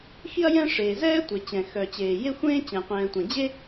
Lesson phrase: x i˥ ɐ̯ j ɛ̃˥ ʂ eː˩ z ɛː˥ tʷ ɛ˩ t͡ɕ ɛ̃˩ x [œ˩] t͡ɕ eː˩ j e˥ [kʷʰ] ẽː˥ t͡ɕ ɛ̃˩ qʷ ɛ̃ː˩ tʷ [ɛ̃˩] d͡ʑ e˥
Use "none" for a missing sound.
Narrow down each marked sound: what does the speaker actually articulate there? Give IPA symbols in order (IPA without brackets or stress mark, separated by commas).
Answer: œ˩, xʷ, ɛ̃˩